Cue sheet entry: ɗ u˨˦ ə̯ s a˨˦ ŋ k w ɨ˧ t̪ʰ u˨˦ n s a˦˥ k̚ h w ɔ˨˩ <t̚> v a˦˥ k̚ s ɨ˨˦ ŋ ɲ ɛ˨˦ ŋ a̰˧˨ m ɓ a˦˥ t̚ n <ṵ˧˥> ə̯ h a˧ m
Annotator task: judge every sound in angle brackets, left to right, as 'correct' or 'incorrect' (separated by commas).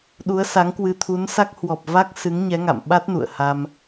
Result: incorrect, incorrect